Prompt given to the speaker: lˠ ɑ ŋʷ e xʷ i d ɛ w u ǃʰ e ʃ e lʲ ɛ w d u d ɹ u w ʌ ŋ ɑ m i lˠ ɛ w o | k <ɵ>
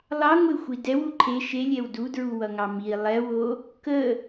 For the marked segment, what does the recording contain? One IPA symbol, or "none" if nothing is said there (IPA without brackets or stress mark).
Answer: ə